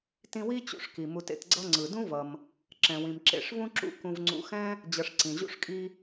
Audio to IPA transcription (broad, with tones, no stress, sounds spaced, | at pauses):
t ĩ˦ w i˥ t͡ɕ ṵ˨ ʂ k i˩ m u˨ t ḛ˨ t ɡ͡ǀ ʌ˦ ŋ͡ǀ ɯ˩ d ũ˥ v ʌ˩ m | ǁ ɛ̃˨ w ĩ˨ m ǁ ḛ˨ ʂ v ũ˥ ǁ ṵ˦ k ũ˨ v ŋ͡ǀ ṵ˨ x ɛ̃˥ | d͡ʑ ʌ˨ ʂ ǀ ĩ˩ ʑ ṵ˦ ʂ kʼ i˦